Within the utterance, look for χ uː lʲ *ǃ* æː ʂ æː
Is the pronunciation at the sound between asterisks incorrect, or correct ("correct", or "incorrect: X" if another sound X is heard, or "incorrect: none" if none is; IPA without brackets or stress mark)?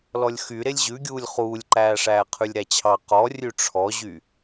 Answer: correct